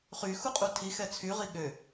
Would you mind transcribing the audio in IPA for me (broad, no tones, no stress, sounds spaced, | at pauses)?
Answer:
χ y x u qʼ u tʰ i x ɛ t͡sʰ y ʁ i ɠ ø